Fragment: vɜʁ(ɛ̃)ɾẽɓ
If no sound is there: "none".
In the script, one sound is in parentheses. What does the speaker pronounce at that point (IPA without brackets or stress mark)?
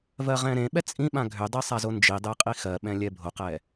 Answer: ɛ̃